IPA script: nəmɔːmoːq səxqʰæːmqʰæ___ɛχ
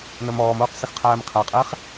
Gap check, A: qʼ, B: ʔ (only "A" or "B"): A